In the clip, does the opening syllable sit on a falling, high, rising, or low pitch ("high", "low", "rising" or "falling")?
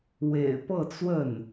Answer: low